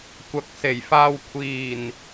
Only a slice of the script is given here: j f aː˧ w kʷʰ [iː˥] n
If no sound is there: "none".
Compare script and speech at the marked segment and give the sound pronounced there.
iː˨˩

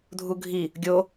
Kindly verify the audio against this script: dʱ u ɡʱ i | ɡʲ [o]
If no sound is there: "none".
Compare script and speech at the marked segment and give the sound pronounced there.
o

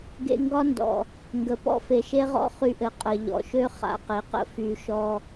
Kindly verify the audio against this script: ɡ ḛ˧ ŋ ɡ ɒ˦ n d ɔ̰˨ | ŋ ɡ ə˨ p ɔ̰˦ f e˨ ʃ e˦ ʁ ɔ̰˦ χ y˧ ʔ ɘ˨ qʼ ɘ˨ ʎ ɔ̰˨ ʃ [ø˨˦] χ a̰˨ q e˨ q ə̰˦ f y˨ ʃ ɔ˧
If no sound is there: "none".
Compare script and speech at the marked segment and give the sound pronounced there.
ø˦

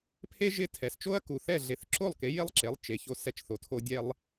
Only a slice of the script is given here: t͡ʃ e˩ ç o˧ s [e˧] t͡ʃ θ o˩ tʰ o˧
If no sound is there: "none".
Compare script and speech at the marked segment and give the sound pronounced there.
ɛ˧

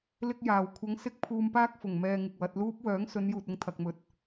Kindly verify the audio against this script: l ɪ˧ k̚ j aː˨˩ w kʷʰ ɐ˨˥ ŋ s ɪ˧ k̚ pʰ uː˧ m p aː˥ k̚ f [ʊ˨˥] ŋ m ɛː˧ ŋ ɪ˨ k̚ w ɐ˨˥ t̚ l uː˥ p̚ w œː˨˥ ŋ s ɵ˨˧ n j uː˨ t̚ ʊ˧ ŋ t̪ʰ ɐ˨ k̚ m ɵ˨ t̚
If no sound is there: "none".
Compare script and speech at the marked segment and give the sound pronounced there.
ʊ˨˩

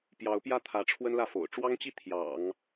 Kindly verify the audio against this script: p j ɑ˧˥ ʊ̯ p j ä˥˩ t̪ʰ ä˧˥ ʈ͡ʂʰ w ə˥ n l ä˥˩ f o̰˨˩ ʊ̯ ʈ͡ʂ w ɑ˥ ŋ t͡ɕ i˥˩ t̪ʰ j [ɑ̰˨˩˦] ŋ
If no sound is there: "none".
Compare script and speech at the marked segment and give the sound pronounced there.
ɑ̰˨˩˦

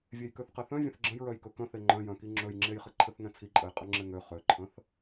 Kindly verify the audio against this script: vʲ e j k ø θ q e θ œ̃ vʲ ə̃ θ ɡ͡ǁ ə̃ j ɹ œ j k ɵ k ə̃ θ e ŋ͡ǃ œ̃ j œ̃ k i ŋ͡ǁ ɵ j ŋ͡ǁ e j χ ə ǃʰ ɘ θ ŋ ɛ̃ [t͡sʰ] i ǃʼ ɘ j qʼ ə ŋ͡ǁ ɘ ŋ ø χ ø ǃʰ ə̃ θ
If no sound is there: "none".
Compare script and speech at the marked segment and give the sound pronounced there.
t͡sʰ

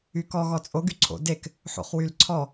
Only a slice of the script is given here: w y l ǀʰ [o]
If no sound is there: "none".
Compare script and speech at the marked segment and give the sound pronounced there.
ɔ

